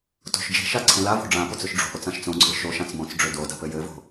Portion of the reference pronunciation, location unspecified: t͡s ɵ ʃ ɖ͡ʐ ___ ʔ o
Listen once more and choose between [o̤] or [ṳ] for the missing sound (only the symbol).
o̤